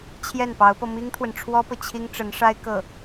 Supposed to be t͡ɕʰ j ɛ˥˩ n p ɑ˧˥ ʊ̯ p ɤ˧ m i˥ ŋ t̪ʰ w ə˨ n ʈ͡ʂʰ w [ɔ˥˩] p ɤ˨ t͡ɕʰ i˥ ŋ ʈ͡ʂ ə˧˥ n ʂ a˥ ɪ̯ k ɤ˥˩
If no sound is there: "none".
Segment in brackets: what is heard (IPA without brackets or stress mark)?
ɔ˥